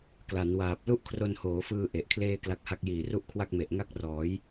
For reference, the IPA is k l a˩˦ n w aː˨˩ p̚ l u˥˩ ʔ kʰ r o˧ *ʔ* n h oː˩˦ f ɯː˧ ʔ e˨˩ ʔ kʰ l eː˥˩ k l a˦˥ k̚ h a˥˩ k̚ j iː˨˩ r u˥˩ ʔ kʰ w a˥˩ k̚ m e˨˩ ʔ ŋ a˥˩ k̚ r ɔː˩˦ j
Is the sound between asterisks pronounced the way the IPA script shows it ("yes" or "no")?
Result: no